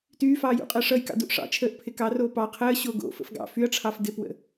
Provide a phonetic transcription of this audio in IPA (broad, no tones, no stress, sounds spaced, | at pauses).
t yː f ɑː j ṵ qʼ əː ʂ ʌ j k ɑ̰ d u ʔ ʂ ɑ̰ t͡ʃʰ əː ʔ pʰ ɪ k ɑ r oː p ɑ qʰ əː ɕ oː ɡ o̰ f ə̰ f ɡ ɑ̰ f y ɐ̯ ʈ͡ʂʰ ɑ f d ɪ p w ə̰